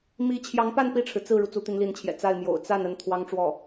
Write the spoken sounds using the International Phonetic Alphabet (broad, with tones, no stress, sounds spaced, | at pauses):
m i˧˥ t͡ɕʰ j ɑ˧˥ ŋ p a˥˧ n p i˥˩ ʈ͡ʂʰ ɻ̩˩ t͡s ɹ̩˥˩ ɻ u˩ t͡s u˧˥ t̪ i˧˥ n l i˧˥ n t͡ɕʰ j ɛ̰˨˩ t͡s a˥˩ ɪ̯ m j o̰˨˩ ʊ̯ t͡s a˥˩ n ə˥ n t̪ʰ w ɑ˥ ŋ ʈ͡ʂ w ɔ˥˩